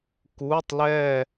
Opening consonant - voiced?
no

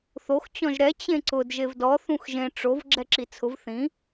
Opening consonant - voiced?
no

